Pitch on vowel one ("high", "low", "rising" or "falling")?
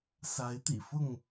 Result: rising